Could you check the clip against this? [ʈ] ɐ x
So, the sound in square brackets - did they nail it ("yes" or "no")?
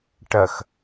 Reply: yes